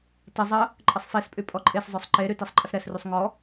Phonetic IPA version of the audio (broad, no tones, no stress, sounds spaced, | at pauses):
t ə zˤ ə | ǃʼ ə sˤ f e s pʼ y pʼ ɔ ǃʼ e s zˤ œ sˤ ǃ e ɾ y t ɛ sˤ ǃʼ ə s ɾ ɛ s r y sˤ ŋ ɔ